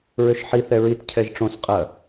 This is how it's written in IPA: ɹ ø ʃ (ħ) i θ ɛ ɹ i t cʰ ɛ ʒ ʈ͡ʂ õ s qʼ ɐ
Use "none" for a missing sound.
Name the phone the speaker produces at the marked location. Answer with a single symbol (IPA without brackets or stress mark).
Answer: ħ